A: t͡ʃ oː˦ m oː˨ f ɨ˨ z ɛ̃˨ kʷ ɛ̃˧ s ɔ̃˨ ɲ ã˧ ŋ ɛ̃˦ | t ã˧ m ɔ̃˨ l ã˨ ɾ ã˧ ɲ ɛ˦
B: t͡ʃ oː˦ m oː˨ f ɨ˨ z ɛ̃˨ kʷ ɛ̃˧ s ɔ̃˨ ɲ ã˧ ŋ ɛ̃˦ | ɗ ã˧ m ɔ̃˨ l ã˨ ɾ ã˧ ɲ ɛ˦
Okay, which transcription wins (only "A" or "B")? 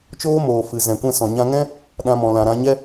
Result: B